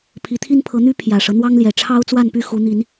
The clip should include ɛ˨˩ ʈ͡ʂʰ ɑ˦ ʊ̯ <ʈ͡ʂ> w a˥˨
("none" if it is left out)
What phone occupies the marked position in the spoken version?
t͡s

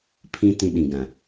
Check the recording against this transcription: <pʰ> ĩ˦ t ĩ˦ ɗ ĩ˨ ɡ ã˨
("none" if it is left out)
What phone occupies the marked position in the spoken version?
pʰ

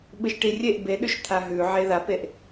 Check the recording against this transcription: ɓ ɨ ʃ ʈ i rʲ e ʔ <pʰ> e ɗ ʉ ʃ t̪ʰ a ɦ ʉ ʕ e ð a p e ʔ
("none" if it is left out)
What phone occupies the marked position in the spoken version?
b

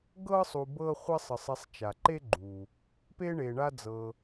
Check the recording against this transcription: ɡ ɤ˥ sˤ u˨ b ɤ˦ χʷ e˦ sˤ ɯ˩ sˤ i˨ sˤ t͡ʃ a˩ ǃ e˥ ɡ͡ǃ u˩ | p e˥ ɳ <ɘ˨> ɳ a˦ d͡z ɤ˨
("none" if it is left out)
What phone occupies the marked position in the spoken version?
e˨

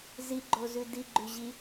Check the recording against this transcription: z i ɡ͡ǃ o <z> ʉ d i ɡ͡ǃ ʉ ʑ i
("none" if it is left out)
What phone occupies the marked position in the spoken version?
z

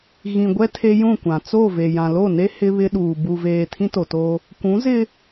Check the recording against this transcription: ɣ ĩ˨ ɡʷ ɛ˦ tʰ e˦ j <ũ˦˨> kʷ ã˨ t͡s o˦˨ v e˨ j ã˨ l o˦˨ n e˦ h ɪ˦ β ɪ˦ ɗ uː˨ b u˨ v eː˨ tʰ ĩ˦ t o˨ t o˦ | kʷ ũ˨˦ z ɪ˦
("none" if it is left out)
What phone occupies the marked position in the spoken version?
ũ˦˨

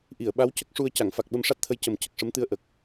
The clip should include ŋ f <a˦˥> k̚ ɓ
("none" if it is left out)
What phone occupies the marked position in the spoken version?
a˨˩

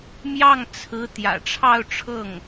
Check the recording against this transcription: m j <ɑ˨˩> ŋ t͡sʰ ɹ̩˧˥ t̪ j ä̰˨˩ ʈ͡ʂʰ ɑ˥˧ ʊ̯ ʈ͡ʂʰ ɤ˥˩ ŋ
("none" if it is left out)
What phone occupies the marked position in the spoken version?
ɑ˥˩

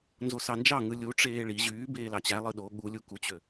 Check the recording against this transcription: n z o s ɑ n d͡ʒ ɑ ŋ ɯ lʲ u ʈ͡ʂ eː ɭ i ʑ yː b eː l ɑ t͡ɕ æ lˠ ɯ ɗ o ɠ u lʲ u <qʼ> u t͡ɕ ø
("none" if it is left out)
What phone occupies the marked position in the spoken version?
k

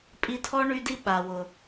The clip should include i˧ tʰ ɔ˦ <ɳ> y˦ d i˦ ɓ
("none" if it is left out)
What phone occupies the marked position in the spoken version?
ɳ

